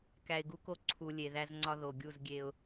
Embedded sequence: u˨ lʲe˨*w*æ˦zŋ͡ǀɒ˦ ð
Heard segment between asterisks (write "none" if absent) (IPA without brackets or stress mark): ð